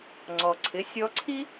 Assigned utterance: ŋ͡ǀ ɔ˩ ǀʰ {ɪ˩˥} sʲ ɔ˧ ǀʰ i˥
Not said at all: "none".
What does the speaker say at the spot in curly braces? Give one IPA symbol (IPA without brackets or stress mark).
ɪ˩˥